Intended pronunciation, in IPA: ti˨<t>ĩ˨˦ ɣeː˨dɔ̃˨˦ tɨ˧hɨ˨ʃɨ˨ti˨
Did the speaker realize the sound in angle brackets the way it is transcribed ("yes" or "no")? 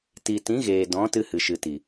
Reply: yes